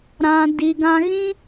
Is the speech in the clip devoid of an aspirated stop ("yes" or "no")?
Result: yes